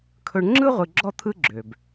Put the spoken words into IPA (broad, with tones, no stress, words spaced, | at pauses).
kʰɵ˧ɳŋ͡ǁɯ˥ ʁʷɯ˧ɡ͡ǁɔ˥ t̪ʰɯ˥ɡ͡ǁø˩b